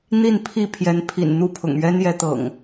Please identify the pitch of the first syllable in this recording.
falling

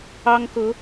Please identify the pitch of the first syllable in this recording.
high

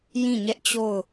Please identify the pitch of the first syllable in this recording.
falling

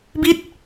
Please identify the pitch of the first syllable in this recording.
falling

